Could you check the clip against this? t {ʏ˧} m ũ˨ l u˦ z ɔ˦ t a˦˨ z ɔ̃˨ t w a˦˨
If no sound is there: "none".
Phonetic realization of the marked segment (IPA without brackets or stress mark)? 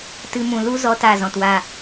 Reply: ɨ˧